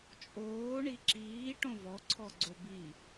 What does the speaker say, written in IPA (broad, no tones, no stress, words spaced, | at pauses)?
t͡ʃʼoː ɳiǁiː ʈõvɔ ǀʰɔɡ͡ǀobi